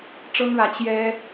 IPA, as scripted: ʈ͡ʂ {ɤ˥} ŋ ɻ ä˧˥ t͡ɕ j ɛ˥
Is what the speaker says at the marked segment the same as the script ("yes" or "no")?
yes